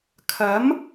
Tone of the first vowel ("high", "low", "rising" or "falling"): rising